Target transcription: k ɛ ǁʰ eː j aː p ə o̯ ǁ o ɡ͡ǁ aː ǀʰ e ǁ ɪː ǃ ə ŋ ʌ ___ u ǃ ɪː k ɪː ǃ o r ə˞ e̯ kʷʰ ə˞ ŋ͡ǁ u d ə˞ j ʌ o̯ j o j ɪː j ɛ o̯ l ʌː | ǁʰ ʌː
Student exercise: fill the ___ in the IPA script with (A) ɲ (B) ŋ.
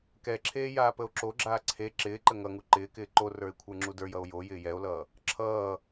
B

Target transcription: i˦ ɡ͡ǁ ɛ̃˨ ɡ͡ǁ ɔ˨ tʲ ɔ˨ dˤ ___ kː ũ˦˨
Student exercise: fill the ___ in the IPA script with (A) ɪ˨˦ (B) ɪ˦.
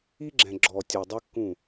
B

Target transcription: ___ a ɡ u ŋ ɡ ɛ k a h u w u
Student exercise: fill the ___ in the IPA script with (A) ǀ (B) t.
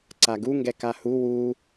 A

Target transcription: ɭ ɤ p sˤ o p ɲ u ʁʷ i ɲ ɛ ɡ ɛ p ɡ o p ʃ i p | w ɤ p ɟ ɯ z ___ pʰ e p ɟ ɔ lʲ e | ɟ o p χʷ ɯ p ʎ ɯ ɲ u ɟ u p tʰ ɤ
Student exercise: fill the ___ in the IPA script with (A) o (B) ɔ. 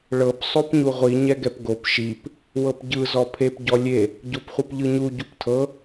B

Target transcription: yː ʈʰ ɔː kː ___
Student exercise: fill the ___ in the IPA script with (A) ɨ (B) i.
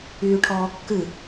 A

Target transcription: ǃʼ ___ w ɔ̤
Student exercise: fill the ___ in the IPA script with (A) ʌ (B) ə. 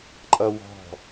A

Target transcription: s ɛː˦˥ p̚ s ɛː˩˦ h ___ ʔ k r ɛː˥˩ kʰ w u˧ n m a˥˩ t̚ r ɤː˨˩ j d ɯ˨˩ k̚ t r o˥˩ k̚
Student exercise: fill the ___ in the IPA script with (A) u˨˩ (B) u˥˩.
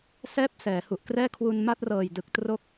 A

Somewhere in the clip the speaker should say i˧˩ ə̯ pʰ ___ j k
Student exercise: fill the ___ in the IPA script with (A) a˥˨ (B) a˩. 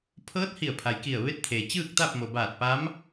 B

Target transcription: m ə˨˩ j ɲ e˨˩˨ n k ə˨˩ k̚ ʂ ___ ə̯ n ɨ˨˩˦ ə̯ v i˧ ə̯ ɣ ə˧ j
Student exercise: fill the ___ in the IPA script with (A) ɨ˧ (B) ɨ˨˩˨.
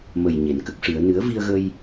B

